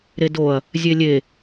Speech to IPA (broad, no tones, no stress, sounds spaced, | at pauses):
ɾ e d o ɐ̯ | zʲ e lʲ e